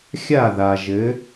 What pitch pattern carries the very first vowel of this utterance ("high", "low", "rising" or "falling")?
falling